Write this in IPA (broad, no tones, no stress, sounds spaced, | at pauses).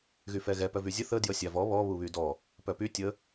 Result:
ɣ y f ɛ ɣ ɛ p œ v y zʲ ə θ ə d j ə sʲ a v ɔ β ɔ β u β y d ɔ | p œ p y tʲ ə